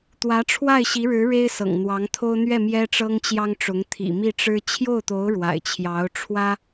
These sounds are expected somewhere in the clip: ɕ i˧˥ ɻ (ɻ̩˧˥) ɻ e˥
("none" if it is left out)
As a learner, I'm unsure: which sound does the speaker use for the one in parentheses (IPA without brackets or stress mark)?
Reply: ɻ̩˧˥